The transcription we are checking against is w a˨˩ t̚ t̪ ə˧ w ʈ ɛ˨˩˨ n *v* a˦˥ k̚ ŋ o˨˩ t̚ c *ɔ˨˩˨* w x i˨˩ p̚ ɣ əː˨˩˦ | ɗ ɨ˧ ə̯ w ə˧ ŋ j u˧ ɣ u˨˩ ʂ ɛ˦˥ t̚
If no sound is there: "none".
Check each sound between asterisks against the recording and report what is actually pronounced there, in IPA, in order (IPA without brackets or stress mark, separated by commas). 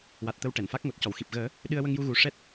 f, ɔ˨˩˨